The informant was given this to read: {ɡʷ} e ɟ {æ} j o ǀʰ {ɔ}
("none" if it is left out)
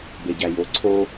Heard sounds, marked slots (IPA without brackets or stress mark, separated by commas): b, æ, o